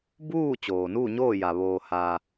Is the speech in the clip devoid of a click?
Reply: yes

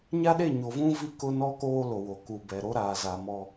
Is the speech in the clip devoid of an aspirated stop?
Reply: yes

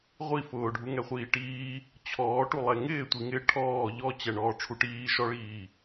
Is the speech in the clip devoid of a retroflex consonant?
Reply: no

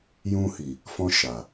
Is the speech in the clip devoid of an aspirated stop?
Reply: yes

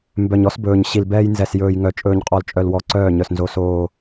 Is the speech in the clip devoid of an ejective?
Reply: no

